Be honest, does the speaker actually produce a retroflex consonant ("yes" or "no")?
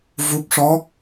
yes